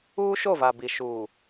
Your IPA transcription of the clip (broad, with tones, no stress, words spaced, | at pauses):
uː˦ʃo˦˨va˨bi˨ ʃuː˨